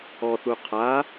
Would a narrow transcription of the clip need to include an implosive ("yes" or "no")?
no